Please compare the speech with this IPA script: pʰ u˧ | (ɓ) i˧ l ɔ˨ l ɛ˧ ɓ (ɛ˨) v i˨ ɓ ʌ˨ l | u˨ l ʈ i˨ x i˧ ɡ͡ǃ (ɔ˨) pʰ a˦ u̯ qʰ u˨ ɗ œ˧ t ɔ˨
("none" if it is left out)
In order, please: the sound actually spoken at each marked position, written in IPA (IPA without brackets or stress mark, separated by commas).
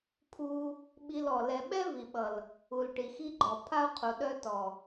ɓ, ɛ˦, ɔ˨